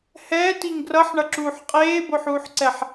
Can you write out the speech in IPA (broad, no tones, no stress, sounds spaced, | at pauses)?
h ɛː t i ŋ ɡ r ʌ ħ ɳ ʌ ǁ uː ħ qʼ eː b o ħ uː ħ ǀ ɛ ħ